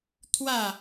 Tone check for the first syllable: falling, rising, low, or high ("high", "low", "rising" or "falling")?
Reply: falling